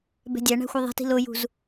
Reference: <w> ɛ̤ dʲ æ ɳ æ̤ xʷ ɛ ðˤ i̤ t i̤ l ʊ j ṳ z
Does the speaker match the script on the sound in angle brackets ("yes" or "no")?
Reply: no